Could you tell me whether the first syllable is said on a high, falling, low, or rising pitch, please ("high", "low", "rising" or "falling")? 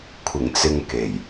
low